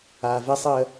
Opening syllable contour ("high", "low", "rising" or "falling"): low